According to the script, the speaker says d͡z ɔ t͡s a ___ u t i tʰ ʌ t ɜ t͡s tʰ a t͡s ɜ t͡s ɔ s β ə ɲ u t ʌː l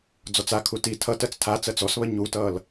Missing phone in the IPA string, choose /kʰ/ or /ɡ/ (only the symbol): kʰ